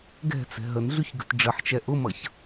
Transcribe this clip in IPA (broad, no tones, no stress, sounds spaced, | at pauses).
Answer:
ɡ ɛ̤ t͡s ɛ̤ ɦ ə n ɮ y ç ɡ ə̤ t ɖ͡ʐ ə ħ t͡ʃ ɛ ʔ ʊ m ʌ ç